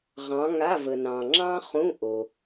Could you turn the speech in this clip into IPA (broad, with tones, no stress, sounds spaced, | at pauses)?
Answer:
ʁ ɑ̃˨˦ ŋ a˧˥˧ v ə˨ n ɑ̃˨ ŋ͡ǁ ɑ̃˥ χ ũ˧˥˧ ʔ o˨